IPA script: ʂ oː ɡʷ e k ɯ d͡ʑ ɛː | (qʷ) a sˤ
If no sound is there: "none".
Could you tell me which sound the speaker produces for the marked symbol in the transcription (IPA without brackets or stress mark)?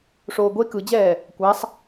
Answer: kʷ